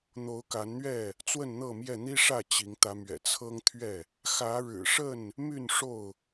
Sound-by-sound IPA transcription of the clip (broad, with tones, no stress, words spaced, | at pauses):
n̪o˨˦ʊ̯ka˨˦nn̪ɥɛ˥˨ | t͡swə˥˨nn̪ɤ˥˨mjɛ˥˨ n̪i˦ʂä˥˨ t͡ɕi˨˦ŋ t̪ä˨˦mɥɛ̰˨˩ t͡sʰɤ˦ŋt̪ʰɥɛ˥˨ | xä˨˦ɻɻ̩˨˩ʂə˥˨n | my˥˨nʂo˥˨ʊ̯